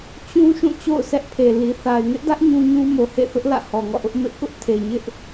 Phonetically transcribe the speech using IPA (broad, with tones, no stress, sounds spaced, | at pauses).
t͡ɕ ũ˦ ʃ ũ˦˨ t͡ɕ o̰˦˨ ʊ̯ s ɛ˦ ʔ pʰ e˨ l i˨ θ a˨ ɪ̯ ŋ ɪ˦ ʔ d ä˦ ʔ ɲ ũ˦ ɲ ũ˦ m o˨ h ḛ˦˨ θ ʊ˦ ʔ l ä̰˦˨ h ɔ˨ ŋ ɔ̰˦˨ ʔ ʊ˦ ʔ m ɪ˦ ʔ k ʊ˦ ʔ tʰ e˨ ɲ ɪ˦ ʔ